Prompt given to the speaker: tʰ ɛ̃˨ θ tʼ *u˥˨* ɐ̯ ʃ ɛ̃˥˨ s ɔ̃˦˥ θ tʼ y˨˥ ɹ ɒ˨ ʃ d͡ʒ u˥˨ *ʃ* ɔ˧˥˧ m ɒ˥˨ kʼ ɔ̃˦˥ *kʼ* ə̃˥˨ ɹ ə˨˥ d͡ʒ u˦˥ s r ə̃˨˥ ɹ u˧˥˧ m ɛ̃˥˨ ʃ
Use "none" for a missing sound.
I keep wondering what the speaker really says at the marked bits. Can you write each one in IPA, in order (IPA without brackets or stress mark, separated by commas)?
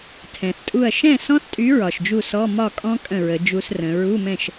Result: u˥˨, s, kʼ